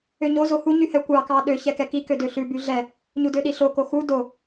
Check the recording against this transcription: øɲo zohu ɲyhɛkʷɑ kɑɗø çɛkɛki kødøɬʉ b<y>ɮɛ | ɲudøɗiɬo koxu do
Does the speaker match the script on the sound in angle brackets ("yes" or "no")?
yes